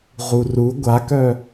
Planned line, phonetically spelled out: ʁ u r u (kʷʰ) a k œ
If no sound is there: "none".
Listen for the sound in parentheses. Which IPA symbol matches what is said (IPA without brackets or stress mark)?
ɡʷ